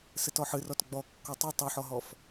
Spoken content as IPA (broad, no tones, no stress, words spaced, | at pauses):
sɨtɔħɨrɔt ɡ͡bɔ kːɔtˤe tˤuħɔɦɔf